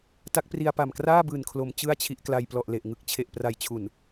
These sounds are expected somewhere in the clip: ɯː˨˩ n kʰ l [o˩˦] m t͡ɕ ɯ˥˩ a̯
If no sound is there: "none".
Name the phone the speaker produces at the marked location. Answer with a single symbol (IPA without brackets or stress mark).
o˩˦